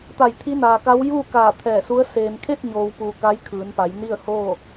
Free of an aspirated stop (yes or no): no